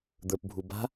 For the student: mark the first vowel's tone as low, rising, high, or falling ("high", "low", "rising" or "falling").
low